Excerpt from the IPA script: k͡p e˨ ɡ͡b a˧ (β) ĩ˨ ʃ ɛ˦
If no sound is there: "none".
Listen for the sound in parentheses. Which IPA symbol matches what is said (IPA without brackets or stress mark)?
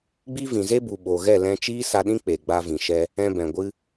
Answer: v